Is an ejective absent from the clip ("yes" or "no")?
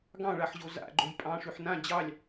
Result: no